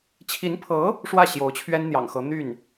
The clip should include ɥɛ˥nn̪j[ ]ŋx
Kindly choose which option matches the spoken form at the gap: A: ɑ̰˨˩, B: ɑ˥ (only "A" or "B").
A